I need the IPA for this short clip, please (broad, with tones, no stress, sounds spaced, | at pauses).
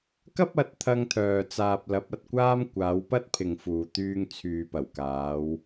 k ɐ˥ p̚ ɐ˨˥ t̚ t̪ʰ ɐ˧ ŋ t̪ʰ œː˨ t͡s aː˨ p̚ l ɐ˨˥ p̚ ɐ˨ t̚ kʷ aː˥ m kʷ aː˨˧ w p ɐ˥ t̚ pʰ ɪ˨ ŋ f uː˨ t̪ yː˧ ŋ t͡sʰ yː˨ p ɐ˨˩ w k aː˨˧ w